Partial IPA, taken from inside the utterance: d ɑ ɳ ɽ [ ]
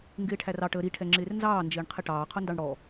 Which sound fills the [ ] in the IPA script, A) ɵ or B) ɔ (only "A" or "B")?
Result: B